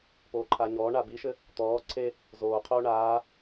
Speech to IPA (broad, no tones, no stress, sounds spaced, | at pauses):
p oː ǃʰ a ɲ ɔː ɳ a b i ʃ ɘ | t̪ ɔː ǀʰ e | z oː qʰ oː ɳ aː